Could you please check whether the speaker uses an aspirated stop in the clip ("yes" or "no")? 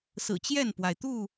no